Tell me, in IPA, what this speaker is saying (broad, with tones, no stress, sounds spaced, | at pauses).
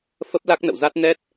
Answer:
f ə˦˥ p̚ l a˦˥ k̚ n ə̰˧˨ w z a˦˥ t̚ n ɛ˦˥ t̚